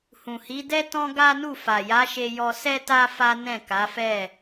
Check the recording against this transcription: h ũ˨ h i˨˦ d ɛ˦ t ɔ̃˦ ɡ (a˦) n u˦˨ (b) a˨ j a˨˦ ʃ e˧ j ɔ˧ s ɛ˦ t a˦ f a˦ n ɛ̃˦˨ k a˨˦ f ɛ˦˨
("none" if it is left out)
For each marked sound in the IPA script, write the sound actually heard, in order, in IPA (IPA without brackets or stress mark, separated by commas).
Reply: a˦, f